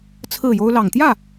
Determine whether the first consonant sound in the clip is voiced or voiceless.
voiceless